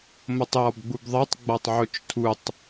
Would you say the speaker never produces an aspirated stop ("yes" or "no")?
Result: no